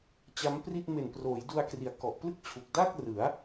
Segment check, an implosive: absent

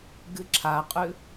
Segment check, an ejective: present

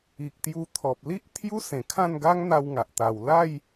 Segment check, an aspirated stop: present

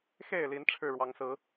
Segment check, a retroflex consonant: present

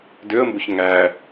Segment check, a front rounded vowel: present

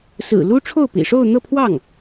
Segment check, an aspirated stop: present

